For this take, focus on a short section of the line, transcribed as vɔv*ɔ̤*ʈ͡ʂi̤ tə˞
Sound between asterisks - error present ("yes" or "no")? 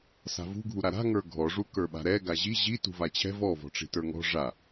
no